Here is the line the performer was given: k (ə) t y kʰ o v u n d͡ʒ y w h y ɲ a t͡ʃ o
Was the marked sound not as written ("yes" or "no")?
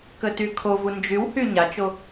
no